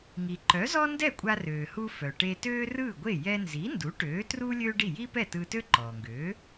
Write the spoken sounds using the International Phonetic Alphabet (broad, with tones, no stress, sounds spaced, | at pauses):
ŋ i˩ ǃ œ˩˥ z ɔ˥ n d ɛ˥˩ kʷʼ a˧ r øː˩ h u˧ f œ˩ ʈ e˧ t øː˥ r ɯː˥˩ ɡʷ e˥˩ j ɛ˧ n z i˩˥ n d u˩˥ ʈ øː˩˥ t r u˥ lʲ øː˥ ɖ i˥˩ j i˥ p ɛ˥˩ t ɯː˧ t ø˥ ǃ ɔː˩ ŋ ɡ øː˩˥